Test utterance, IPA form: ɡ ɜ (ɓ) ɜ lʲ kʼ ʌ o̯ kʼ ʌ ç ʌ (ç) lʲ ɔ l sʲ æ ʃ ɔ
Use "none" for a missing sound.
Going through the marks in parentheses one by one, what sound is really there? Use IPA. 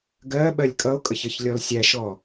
ɓ, ç

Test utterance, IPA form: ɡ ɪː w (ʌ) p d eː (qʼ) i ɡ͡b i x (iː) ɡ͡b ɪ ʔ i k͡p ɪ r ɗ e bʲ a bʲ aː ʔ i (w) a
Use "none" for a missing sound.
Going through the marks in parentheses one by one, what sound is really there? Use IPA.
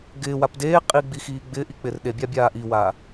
a, qʼ, iː, w

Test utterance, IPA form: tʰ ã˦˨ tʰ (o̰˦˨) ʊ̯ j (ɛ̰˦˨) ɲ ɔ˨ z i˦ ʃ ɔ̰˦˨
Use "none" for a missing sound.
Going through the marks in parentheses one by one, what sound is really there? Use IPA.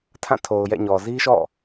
o˨, ɛ̰˦˨

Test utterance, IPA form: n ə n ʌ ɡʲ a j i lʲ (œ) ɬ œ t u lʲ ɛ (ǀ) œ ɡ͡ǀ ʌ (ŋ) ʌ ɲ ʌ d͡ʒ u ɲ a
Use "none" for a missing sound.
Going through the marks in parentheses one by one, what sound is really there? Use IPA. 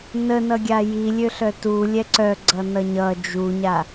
ø, ǀ, n

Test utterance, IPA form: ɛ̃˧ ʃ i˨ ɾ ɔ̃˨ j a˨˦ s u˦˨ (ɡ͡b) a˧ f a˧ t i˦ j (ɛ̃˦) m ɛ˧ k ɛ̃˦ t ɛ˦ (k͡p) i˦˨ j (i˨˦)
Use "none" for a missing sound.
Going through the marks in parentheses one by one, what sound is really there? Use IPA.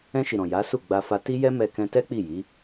ɡ͡b, ɛ˦, k͡p, i˨˦

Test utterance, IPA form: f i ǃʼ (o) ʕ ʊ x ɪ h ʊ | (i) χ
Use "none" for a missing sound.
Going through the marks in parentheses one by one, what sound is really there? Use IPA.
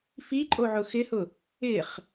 o, ɪ

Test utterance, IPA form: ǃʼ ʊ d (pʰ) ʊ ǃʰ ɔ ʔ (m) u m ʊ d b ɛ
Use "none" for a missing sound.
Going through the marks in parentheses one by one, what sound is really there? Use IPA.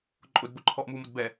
b, m

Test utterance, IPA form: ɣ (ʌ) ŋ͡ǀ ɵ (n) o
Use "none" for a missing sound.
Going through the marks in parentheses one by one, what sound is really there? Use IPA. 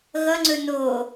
ʌ, n

